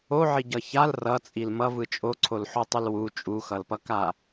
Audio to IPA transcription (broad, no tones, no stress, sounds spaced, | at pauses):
o ʕ i ɟ ʌ ç a l r ʌ t͡sʼ i l m ʌ v ɯ t͡ʃʼ o ǀʰ o l ħ o tˤ ɯ l w u t͡ʃʼ u x ʌ l p ʌ k a